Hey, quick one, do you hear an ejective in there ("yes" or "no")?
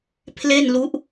no